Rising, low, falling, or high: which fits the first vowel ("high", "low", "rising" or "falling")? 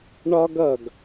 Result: high